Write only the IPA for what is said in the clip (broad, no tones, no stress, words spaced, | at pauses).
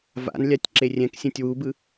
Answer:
va̰nlʲatʲ ǁerʲɛ̃ksʲɛ̃tʲ wubɯ